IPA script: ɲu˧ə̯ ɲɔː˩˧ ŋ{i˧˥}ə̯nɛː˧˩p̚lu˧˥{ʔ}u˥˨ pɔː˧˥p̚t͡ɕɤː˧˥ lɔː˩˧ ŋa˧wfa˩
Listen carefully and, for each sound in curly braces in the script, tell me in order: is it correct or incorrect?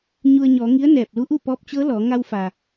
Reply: correct, correct

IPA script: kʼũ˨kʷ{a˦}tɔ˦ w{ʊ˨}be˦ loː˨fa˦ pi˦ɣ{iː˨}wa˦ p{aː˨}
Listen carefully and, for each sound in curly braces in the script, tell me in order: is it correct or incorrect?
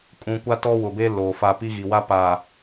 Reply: correct, correct, incorrect, correct

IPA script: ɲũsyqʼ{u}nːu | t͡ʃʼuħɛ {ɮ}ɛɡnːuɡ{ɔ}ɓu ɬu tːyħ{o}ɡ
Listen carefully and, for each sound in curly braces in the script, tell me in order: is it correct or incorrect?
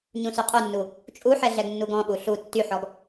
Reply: correct, correct, incorrect, incorrect

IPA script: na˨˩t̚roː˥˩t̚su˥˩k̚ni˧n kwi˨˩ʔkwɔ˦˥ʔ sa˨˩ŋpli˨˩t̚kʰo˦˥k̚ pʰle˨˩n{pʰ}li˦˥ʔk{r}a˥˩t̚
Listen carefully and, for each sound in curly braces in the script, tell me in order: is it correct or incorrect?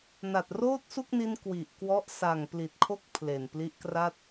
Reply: incorrect, correct

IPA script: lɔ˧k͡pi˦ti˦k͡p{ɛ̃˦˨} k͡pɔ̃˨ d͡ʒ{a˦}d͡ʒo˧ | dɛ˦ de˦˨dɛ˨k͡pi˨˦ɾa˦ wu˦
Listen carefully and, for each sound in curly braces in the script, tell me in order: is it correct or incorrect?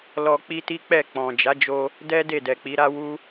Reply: incorrect, incorrect

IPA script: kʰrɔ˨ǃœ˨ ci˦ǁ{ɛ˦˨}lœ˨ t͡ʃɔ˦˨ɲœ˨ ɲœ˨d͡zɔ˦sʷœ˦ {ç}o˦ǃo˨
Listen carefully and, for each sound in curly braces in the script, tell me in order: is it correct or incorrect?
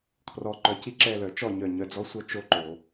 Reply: correct, incorrect

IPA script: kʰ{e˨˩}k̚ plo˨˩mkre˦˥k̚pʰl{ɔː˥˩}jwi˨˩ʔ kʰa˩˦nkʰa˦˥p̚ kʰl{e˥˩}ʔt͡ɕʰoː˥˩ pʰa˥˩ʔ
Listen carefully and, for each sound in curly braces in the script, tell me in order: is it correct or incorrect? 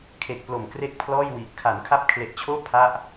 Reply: correct, correct, incorrect

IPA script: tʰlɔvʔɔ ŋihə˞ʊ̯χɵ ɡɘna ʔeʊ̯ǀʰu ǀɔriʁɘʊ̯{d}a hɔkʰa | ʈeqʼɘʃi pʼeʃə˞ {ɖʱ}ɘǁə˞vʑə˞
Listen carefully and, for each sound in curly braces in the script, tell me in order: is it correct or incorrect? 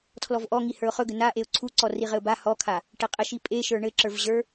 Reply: incorrect, incorrect

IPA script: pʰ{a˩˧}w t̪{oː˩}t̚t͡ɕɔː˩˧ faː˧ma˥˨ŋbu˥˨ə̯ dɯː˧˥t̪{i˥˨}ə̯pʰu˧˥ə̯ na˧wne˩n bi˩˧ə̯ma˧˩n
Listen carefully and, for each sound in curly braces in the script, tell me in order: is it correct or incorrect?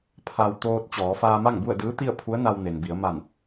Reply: incorrect, incorrect, correct

